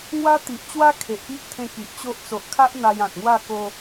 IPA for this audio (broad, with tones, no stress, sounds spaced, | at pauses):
ŋ w a˦ t̪ i˨ ʔ t͡ɕ w a˦ kʰ e˨ ʔ p i˦ ʔ t̪ʰ ẽ˧ k i˨ ʔ t͡ɕ o˦ ʔ t͡s o˨ ʔ kʰ a˦ ʔ n̪ a˧ j ã˨ t̚ ŋ w a˥˧ k o˧